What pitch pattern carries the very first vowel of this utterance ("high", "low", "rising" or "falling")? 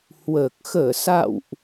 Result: low